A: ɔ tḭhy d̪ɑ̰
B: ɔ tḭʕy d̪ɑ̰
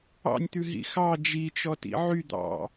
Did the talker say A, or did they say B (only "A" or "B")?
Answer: B